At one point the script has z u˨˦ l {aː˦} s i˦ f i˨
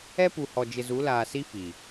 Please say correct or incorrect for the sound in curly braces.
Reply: incorrect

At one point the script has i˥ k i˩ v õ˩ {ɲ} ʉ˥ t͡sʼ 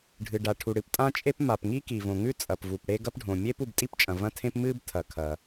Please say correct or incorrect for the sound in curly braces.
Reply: incorrect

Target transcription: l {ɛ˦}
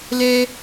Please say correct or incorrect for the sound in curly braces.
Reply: correct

